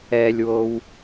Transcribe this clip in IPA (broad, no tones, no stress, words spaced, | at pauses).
ɛlʲwow